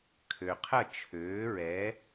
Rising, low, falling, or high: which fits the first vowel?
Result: low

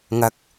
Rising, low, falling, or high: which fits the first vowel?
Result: rising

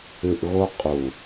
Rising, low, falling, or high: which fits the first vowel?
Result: low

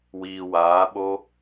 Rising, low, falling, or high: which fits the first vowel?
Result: low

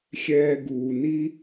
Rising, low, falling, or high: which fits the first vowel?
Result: low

